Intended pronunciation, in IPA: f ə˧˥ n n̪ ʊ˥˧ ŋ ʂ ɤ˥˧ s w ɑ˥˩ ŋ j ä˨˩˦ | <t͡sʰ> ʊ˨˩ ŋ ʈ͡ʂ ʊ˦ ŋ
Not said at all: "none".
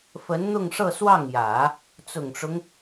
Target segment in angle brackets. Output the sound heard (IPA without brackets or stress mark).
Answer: t͡s